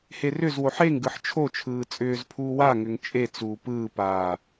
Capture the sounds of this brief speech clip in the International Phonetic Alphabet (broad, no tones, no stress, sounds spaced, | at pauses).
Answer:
h e r ʏ z w o ħ e ŋ ɡ ɯ ħ t͡ʃʰ o t͡ʃʰ ɯː t͡sʼ ʏː z pʰ uː w a ŋ ʏ ŋ t͡ʃʼ e t͡s uː p ɯː p aː